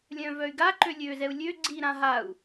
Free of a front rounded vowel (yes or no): no